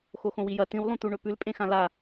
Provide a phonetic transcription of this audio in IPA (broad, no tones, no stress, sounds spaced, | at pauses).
x o x õ w i j ɐ t ĩ w lˠ ũ t̪ u ɳ ɵ p ʉ l pʼ ẽ x ã l a